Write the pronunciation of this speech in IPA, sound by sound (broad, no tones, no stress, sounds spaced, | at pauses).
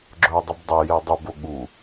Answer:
ɡ͡ǁ ɵ ə̯ dˤ ɨ b dˤ e j e dˤ ʉ b o ɠ u